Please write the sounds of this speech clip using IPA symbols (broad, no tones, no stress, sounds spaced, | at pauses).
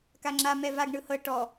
k a ŋ͡ǁ a m ɛ v a ɡ ɳ ɯ h ɤ ʈ ɔ